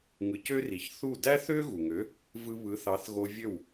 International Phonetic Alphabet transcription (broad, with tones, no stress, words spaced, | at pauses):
ŋɯ˩˥cø˥ri˩ç θu˥˩ dæ˥θø˥ɣu˩ŋø˩˥ | vɯ˧βɯ˩˥ θɑ˩˥θɣo˧ vʲø˥˩w